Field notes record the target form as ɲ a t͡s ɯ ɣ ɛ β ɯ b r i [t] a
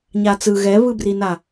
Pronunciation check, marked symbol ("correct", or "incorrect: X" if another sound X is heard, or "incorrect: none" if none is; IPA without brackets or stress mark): incorrect: n